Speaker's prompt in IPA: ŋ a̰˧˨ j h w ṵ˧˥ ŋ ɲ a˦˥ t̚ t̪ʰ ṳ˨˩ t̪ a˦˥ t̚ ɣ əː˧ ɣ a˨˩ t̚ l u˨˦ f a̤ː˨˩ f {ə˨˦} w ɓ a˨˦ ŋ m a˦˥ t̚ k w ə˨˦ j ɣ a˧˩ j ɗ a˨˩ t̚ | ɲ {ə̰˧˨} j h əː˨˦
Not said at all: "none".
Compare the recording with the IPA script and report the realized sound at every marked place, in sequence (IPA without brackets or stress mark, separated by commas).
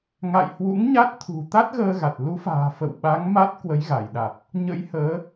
ə̰˧˨, ə̰˧˥